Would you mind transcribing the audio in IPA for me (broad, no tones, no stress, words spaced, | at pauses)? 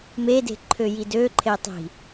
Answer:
mede̤ ǃʰøjidøǃʰe tˤi̤